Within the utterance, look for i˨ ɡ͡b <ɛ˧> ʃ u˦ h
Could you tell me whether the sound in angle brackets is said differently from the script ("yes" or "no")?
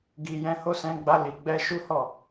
no